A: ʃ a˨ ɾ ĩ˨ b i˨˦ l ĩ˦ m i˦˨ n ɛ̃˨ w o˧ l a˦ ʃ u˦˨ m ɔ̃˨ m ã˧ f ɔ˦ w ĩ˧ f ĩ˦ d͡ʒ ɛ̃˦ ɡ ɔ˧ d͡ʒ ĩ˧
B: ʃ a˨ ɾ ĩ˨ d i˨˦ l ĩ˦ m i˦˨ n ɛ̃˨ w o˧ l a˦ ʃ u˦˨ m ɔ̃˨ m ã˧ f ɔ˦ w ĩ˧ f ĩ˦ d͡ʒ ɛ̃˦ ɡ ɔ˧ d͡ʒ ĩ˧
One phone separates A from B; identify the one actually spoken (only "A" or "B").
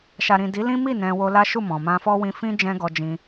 B